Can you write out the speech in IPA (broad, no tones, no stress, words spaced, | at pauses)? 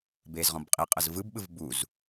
beːzʁɔ̃bqʼiqʼɤz vɯbɓɯv buz